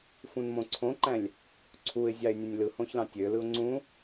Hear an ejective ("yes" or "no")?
no